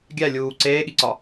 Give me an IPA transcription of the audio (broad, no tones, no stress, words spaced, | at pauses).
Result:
ɡʲæ lʲuː ǀeːɠiǀɒ